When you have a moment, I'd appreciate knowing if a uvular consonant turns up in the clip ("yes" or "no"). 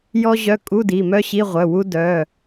yes